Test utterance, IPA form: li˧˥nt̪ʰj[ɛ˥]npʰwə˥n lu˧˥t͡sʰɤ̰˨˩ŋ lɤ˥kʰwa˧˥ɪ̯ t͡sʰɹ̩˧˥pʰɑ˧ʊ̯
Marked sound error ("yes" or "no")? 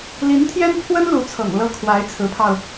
no